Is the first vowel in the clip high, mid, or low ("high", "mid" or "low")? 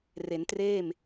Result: mid